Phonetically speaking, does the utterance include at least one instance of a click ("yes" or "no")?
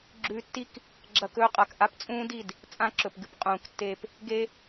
yes